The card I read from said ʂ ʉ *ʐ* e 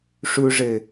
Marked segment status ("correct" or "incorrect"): correct